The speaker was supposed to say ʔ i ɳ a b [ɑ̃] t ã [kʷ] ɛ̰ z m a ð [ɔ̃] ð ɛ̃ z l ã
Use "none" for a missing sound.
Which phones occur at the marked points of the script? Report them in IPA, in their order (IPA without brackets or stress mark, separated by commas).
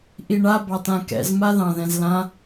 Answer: ɑ, k, ɑ̃